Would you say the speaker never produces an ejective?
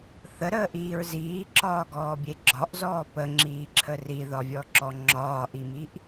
yes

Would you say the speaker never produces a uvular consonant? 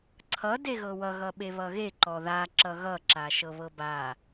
yes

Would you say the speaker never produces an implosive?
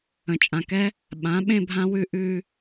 no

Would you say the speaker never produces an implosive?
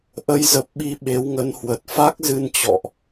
no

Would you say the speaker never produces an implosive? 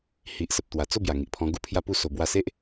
yes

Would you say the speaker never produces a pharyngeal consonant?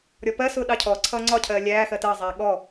yes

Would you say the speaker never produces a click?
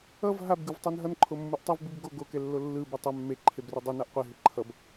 no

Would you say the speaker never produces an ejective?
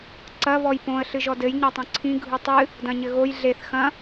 yes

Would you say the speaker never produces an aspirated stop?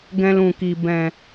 yes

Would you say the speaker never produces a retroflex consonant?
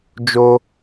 yes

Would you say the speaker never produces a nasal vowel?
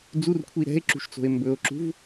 yes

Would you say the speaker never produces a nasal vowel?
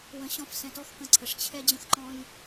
no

